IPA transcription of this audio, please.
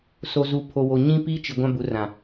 s o˨ z u˨ pʰ o˨ w o˨ ɲ ĩ˦ p i˦ t͡ʃ i˨ ɡʷ ã˦ b u˨˦ r ã˨

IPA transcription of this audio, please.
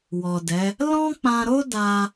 w ɔ˨ d ɛ˨˦ | l ɔ̃˦ k͡p ã˧ ɾ o˦ d a˧

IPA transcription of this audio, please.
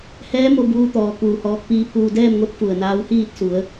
h ɛː˧˥ m o˧ b uː˧ t̪ ɔː˩ k uː˧˩ h ɔː˧ k̚ p iː˧ pʰ uː˧ d ɛː˥˨ m ŋ o˧˥ t̚ f u˧˩ ə̯ n aː˧˥ w h iː˥˨ t̚ s u˩˧ ə̯

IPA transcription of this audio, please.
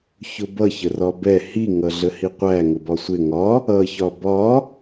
ç ʊ b ʌ ç ə r ɒ b ɛ h i ŋ ʌ ɮ ə h i qʷ æ ŋ ʊ b ɒ sʷ ɪ ŋ ɒ | ʌ ç ɒ b ɒ

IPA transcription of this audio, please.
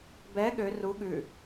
b ɛ ɠ ø r u ɠ ʉ

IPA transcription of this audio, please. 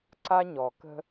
ǀ a˦ ɲ ɔ˨ k ə̤˦

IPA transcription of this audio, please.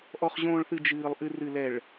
ʔ ɔ˨ χ ʑ õː˨ ɭ θ ɨ˨ d͡ʒ ɨː˨ lˠ ʔ ɨ˨ r ɨ˨ l ɛ˨ ɭ

